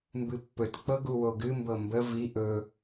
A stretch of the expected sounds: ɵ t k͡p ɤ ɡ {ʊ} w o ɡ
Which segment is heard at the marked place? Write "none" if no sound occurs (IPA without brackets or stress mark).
u